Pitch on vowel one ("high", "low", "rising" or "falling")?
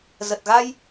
low